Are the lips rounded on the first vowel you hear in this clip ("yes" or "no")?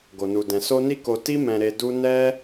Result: yes